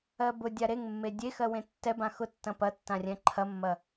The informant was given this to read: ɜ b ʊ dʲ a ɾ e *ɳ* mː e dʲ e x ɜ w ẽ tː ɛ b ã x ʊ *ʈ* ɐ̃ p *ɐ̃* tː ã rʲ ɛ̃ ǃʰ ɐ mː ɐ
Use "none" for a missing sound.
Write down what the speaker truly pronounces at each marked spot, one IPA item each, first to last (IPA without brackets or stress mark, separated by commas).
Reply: ŋ, tː, ɐ